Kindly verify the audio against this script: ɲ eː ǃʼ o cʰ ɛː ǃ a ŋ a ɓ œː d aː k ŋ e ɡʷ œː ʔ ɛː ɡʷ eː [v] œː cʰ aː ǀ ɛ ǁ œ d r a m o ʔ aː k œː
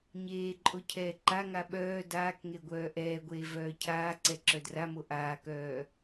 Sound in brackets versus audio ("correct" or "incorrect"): correct